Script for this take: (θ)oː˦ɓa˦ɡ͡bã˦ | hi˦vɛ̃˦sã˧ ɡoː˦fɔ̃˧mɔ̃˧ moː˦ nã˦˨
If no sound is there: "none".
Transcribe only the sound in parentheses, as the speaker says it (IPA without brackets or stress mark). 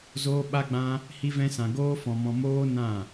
z